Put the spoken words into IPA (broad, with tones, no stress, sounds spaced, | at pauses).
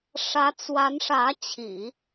ʂ ä˧˥ t͡s w a˧˥ n ʂ ä˧˥ t͡ɕʰ ḭ˨˩˦